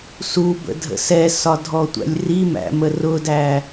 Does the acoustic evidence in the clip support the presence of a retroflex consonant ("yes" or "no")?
no